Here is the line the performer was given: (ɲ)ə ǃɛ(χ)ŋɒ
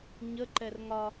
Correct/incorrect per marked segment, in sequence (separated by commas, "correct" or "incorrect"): correct, incorrect